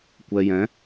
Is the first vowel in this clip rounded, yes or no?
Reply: no